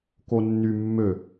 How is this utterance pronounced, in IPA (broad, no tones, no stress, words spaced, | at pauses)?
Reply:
konːy mːø